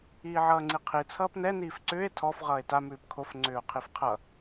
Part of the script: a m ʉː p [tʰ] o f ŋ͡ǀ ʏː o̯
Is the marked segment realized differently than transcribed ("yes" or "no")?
yes